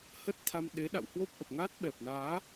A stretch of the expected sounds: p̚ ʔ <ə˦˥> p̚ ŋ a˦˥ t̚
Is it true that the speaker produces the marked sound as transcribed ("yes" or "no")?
no